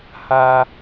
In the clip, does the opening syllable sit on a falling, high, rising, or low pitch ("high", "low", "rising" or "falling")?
low